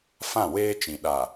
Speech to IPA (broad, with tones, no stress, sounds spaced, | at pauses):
f ã˦˨ w eː˦ t͡ʃ ĩ˨ ɗ a˨